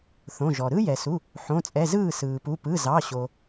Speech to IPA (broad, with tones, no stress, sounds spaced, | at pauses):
θ õ˩˧˩ ʒ ɔ˩ ɾ ɯ˥ j ɛ˩ s u˩˧˩ | ħ õ˩˧˩ t͡sʼ ɛ˩˧˩ z ɯː˥˩ s ɯː˩ p u˩˧˩ p ɯ˩˧˩ z ɑ˩˧˩ ɕ o˩